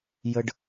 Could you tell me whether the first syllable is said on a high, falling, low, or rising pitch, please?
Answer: low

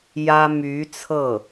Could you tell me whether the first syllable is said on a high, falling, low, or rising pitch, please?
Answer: high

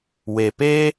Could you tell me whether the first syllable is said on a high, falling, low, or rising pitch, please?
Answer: low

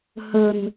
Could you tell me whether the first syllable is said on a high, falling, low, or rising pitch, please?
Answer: low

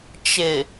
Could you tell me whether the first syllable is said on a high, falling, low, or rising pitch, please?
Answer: low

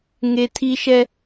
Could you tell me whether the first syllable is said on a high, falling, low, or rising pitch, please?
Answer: high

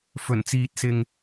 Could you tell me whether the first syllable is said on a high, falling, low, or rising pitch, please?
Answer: low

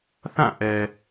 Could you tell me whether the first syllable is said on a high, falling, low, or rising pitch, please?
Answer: falling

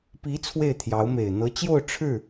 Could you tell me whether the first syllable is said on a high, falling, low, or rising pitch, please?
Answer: rising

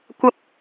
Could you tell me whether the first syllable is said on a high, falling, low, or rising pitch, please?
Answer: high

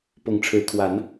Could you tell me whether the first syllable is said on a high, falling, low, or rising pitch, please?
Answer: rising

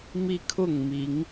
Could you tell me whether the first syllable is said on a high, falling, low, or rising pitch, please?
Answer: high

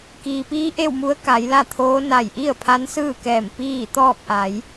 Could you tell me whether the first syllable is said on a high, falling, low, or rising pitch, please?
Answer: low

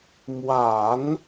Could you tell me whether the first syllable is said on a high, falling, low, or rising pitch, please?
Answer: low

